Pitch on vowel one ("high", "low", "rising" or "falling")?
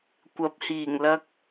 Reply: rising